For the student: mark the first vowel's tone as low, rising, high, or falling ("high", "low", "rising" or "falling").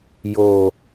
high